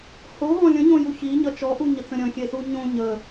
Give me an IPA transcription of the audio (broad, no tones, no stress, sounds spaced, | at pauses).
h o ɦ ɔ̃ lʲ ə̃ ɲ õ j u ç i ɲ ʌ t͡ʃ ɔ ʔ u ɲ ə t͡s ə̃ ɾʲ ə̃ xʲ e s u ɲ õ ɲ ə